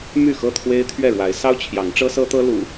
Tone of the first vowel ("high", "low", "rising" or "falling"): falling